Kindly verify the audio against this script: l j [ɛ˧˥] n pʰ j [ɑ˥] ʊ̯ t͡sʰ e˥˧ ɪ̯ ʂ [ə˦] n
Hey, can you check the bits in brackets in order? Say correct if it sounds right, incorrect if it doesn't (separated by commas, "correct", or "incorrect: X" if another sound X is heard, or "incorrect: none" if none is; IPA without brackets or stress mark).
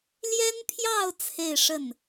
incorrect: ɛ˥, incorrect: ɑ˥˧, incorrect: ə˥˩